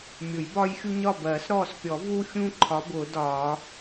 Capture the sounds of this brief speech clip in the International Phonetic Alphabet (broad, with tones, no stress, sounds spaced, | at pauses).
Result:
mʲ ʊ˨˩˦ j b ɒː˦ j xʲ u˦ ɲ ɒ˦˨ b ɜː˨˩˦ s ɾ ɔː˦˨ s pʲ ɔ˨˩˦ v u˦ xʲ ũ˦ ǃʰ ɒ˨˥ b ʊː˨˩˦ d ɒː˨˩˦